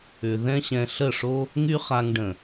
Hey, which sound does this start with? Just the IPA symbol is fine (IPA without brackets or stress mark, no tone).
ʏ